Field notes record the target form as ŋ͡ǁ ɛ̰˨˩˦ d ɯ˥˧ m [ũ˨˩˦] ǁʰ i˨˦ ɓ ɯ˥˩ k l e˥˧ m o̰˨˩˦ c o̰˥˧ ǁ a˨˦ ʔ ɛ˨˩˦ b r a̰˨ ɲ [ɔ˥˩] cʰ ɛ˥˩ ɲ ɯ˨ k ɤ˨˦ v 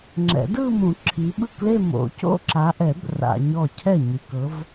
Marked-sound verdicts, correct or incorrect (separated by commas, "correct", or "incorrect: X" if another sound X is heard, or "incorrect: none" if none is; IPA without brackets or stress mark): correct, correct